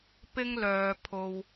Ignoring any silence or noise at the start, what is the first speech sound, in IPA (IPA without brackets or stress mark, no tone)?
p